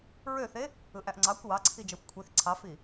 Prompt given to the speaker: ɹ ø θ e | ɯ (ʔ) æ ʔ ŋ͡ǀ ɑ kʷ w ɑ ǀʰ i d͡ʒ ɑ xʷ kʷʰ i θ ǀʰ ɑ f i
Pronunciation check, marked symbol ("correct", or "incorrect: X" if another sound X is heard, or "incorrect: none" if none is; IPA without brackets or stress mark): correct